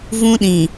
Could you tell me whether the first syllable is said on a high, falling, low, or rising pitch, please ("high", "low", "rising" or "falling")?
high